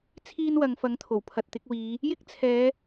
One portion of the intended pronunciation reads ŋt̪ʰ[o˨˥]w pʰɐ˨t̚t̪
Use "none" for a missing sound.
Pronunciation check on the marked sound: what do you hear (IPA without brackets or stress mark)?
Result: o˨˩